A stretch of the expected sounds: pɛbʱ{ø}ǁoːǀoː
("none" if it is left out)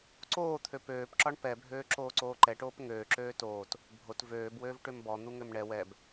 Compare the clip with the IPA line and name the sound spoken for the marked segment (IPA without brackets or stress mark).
øː